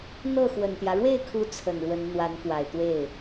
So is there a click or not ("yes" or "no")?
no